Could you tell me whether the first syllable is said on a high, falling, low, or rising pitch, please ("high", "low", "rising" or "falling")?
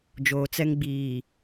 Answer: low